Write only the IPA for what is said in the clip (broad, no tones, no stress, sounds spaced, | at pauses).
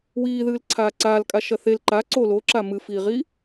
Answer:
w iː ð ɨː l ǀʰ aː ǀ aː l kʼ a ʃ ɐ θ e l ǃ a ǀ o l o ǁ a m ɨ f iː ʁ i